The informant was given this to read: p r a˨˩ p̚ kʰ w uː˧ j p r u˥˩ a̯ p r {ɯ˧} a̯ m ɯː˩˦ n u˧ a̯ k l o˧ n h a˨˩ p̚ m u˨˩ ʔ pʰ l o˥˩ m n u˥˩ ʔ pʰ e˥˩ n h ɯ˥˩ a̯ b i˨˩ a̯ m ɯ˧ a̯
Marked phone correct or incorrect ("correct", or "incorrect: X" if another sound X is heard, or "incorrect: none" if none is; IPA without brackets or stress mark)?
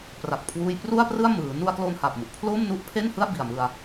incorrect: ɯ˥˩